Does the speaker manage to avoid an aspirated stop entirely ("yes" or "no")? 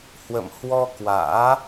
yes